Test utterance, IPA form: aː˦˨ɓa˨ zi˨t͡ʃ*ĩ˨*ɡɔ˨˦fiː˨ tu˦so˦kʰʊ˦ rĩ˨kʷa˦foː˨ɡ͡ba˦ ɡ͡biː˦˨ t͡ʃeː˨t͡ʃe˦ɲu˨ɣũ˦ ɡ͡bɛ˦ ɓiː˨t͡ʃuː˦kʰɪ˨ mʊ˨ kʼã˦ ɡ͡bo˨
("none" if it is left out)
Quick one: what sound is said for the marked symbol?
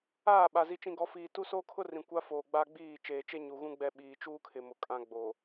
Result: ĩ˨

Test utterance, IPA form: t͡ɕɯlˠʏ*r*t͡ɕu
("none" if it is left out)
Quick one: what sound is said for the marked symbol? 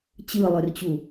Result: r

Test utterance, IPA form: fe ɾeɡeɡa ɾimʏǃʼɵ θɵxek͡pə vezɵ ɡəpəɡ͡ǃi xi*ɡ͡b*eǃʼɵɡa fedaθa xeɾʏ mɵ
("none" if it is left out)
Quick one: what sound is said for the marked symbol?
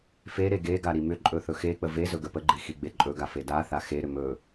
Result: ɡ͡b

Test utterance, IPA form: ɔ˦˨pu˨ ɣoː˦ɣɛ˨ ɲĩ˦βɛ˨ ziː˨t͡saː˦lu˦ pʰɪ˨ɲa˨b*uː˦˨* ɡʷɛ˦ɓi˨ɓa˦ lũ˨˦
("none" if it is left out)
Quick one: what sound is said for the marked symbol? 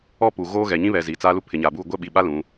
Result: uː˦˨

